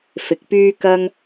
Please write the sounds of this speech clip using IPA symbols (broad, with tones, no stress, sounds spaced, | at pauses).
f ɪ˨˥ k̚ p yː˥ k ɐ˥ ŋ